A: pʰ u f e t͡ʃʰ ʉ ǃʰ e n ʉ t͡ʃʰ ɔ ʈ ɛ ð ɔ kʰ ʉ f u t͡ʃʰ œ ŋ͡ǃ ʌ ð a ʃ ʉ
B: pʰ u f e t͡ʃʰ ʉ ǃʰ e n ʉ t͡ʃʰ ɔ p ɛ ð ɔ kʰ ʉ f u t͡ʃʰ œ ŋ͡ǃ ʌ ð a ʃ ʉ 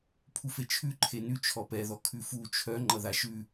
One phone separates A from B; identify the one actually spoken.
B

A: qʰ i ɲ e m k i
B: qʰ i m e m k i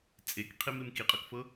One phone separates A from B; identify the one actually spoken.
B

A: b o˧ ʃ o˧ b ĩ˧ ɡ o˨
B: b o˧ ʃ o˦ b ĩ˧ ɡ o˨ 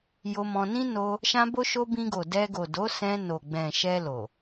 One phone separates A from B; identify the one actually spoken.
A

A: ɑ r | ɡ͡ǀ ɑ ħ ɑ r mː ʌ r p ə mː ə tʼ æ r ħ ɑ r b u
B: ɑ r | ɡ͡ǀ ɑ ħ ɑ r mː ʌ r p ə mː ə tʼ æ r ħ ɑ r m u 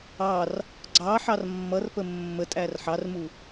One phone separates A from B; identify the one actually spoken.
B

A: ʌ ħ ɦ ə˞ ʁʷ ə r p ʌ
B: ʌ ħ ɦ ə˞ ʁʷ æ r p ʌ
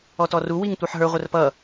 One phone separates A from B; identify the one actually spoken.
A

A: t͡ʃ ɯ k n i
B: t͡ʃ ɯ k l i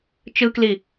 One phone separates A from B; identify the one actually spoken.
B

